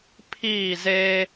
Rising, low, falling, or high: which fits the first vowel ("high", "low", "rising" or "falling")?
falling